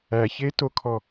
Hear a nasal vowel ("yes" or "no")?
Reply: no